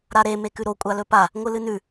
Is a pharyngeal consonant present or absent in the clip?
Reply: absent